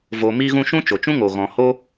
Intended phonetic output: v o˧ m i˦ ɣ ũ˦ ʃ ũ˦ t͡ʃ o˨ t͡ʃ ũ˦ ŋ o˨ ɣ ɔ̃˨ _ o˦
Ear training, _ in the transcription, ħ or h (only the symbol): h